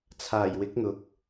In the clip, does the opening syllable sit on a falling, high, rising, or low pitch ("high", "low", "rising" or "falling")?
low